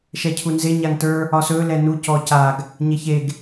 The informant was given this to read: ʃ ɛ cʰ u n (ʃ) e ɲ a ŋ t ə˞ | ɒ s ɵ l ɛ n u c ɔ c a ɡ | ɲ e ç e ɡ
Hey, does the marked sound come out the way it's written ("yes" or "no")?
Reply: no